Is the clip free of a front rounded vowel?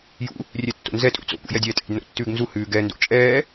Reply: yes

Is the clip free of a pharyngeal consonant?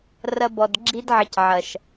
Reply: no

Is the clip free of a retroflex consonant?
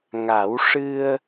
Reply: no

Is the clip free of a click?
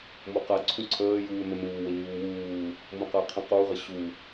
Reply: no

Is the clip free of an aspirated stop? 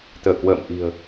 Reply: yes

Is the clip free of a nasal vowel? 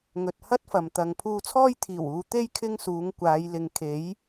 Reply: yes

